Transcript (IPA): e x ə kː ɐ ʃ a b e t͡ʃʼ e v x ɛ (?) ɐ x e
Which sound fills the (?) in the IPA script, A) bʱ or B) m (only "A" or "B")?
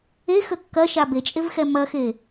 B